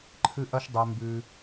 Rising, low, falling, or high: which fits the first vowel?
high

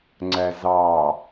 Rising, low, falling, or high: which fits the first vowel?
low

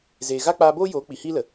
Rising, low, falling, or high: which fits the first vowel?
low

